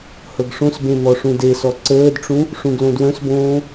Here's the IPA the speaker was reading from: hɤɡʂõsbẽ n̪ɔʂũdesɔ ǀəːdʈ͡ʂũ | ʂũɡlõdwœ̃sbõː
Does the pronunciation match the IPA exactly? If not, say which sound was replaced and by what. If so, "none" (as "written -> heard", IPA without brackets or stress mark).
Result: none